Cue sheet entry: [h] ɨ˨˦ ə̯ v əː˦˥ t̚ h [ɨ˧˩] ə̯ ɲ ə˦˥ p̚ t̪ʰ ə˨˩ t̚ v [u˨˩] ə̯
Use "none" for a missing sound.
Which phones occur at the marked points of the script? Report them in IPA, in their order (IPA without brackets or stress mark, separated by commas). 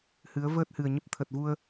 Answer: h, ɨ˨˩, u˧